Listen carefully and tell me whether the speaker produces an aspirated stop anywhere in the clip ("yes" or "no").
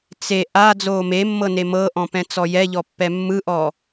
no